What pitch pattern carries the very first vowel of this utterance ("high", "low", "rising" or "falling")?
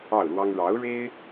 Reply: falling